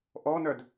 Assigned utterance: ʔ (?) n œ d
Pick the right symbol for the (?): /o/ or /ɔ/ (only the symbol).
ɔ